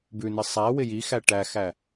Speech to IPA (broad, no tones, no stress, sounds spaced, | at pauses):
b ʉ n ɪ sˤ æ w ɪ j i x æ ʈ æ x æ